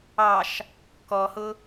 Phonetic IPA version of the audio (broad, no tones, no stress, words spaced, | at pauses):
ɑʃ | kɔhʊ